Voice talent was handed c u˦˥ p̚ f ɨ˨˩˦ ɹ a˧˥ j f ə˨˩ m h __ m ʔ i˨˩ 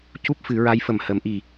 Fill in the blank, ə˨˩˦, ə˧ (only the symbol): ə˨˩˦